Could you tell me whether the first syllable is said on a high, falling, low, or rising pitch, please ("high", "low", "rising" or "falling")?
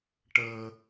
high